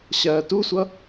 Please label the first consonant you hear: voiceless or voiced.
voiceless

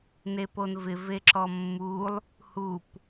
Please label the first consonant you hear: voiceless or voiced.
voiced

